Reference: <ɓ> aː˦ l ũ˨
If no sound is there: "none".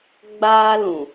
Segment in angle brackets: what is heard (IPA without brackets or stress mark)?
ɡ͡b